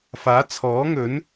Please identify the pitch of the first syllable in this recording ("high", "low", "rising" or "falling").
rising